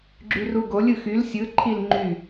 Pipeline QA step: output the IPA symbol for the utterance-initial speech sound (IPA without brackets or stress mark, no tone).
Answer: ɡ͡ǁ